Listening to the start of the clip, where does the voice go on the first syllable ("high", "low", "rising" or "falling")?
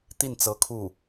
falling